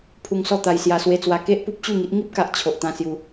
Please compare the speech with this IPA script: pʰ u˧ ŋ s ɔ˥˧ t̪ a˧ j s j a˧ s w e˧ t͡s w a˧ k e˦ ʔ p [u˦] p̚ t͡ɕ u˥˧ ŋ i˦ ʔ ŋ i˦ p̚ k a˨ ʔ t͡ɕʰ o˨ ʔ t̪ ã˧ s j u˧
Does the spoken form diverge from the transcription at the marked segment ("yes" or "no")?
no